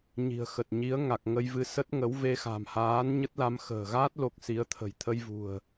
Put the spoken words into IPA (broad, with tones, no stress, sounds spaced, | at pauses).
ɲ i̤˨˩ ə̯ x ə˨˩ t̚ ɲ i˨˦ ə̯ ŋ a˨˩ k̚ ŋ ə˧ j v ɨ˧ s ə˦˥ t̚ ŋ ə˨˦ w v e˧ x a̤˨˩ m h aː˨˦ n ɲ ə˦˥ t̚ l a˧ m x ə̤ː˨˩ ɣ aː˦˥ t̚ l o˦˥ k̚ s i˨˦ ə̯ t̪ʰ ə̤˨˩ j t̪ʰ ə˧ j v ṳ˨˩ ə̯